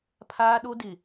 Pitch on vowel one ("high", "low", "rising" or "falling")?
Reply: high